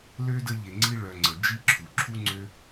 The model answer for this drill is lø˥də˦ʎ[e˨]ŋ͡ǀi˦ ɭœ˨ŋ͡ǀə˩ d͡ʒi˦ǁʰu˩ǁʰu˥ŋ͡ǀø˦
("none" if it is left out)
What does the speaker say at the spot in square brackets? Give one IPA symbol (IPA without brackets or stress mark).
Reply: e˨